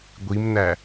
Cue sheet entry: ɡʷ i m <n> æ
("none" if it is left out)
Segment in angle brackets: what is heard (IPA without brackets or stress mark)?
n